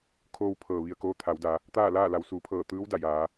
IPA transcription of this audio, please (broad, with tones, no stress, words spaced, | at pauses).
kʰoː˧w pʰɤː˩ ʋi˩ə̯koː˧ t̪ʰa˩˧wda˩˧ | t̪aː˥˨laː˥˨ la˩˧wsuː˩˧pʰɤː˧˩ t̪ɯː˧˥w da˧˩jaː˩˧